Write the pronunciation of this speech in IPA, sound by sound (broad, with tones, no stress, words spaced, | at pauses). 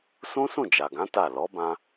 sũ˦sũ˦˨d͡ʒa˨ɡã˨˦ ta˦˨ lɔ˨˦bã˧